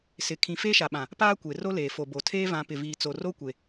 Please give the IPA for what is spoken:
sɪ˨ kʰĩ˨ feː˦ʃa˨ɓã˨ | paː˦kʷe˨ ro˦leː˨ fo˨bo˨tʰeː˦vã˨˦ pɪ˨viː˨t͡so˨ ro˦kʷe˨

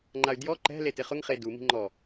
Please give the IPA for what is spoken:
ŋ͡ǃay̯djɔ ǃɛ̤le tɪχʊŋχe dumi̤ ŋ͡ǃɔ

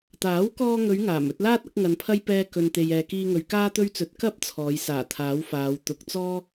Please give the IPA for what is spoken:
t̪aː˨˥w kɔː˧ŋɵ˨˧ɥ ŋaː˨˩m ɵ˧t̚laː˥t̚ ɐ˨˥k̚ŋɐ˨˧npʰɐ˥j pɛː˧ kɵ˧nt̪e˧jɛː˧ kiː˧ŋɵ˨˧ɥ kaː˥t̪ɵ˥ɥt͡sɵ˨˥t̚ kɐ˥p̚ t͡sʰɔː˨˧jsaː˨˩ t̪ʰaː˨˥wfaː˨˧w t̪ʊ˧k̚ t͡sɔː˥

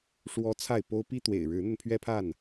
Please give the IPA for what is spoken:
ʂwɔ˦t͡sʰa˥˨ɪ̯po˦ʊ̯ pi˦t̪wḛ˨˩ɪ̯ ɻɻ̩˨˦n̪ə˧npʰɥɛ˦ pʰa˥˨n

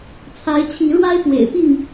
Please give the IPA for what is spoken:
t͡sʰa˨˦ɪ̯t͡ɕʰi˨˦ɻwa˦ɪ̯ pwḛ˨˩ɪ̯pi˥˨ŋ

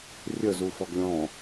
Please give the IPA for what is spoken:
rʲəzu fɔɡlʲɔ̃

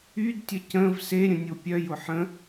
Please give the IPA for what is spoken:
ydtʲə cə̃v seɾʲə̃nʲo pʲœjʊ ħə̃

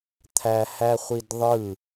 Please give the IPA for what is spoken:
t̪ʰæhæχʷidðˤɯ

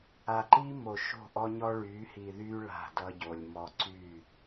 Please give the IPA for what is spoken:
a˨ǃi˦ mo˨ʃo̤˦˨ʔɔ˦ɲɔ˦ ɭy˨˦hi˨ðy˦ ɭa̤˦˨dʌ˦ɟo˨lʲmɔ˦ ǀy˦˨

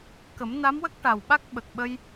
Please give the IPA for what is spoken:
kə˨˩˦mna˧˥mwə˦˥k̚ ʈa˨˩wɓa˦˥k̚ ɓə˨˩k̚ɓə˧j

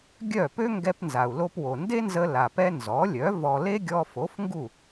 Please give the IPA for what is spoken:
ɡʲœ˥˩ pø˥ŋɡɛ˧pnza˩u̯ lo˧pwo˩nde˥nzə˧ la˩pɛ˥ nzɔ˩˥lʲœ˩˥ vɔ˧ le˥ɡʲɔ˧fo˩˥fŋɡu˥˩

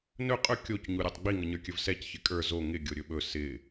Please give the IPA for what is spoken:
nɵ qʼɵ kʲoc ɲuɾʲɔtˤɡ͡bi ŋʌɲə˞kʲɵvsɛc çɪkʼə˞ zo ŋɪ ɡʲoɾʲɵɓɵ sɪ

